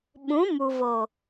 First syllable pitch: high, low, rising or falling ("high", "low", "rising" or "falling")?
rising